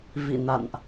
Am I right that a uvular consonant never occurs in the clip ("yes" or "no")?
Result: yes